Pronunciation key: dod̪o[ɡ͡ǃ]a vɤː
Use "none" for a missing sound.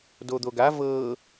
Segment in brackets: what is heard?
ɡ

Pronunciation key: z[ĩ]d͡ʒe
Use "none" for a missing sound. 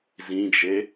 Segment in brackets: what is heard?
ĩ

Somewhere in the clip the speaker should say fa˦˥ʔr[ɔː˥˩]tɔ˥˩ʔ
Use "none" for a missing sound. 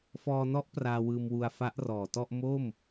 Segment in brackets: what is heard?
ɔː˨˩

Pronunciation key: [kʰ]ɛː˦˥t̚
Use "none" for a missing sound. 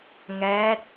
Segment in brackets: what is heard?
ŋ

